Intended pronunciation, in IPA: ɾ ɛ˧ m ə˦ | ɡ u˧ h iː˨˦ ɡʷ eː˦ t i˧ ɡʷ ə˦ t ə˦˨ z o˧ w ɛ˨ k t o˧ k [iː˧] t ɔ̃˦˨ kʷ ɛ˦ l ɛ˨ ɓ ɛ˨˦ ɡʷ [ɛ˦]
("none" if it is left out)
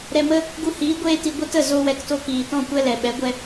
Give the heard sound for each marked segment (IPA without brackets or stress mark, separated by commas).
iː˨, ɛ˦